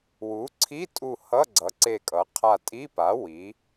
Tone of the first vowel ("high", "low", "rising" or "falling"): rising